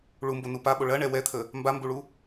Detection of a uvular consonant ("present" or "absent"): absent